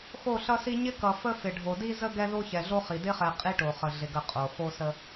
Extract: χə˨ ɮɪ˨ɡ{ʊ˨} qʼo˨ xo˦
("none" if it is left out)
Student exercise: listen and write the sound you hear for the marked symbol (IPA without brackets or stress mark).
ə˨